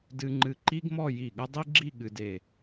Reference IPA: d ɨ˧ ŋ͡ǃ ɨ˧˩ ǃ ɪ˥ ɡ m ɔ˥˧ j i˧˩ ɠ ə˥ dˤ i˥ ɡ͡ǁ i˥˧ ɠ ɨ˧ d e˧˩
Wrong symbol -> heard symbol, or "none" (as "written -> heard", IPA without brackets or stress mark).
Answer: ɪ˥ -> i˥